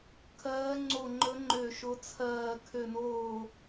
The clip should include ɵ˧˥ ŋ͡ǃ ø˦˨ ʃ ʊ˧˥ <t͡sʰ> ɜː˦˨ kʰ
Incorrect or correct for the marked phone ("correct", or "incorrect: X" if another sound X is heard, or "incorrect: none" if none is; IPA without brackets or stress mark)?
correct